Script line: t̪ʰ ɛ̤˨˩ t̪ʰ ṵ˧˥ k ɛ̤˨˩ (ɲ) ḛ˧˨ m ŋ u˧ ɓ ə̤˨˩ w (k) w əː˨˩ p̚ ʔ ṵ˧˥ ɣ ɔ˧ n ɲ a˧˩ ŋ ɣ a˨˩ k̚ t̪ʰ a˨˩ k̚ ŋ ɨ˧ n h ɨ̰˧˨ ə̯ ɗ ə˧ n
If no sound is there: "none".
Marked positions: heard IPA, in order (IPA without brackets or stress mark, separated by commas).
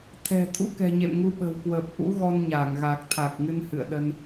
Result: ɲ, k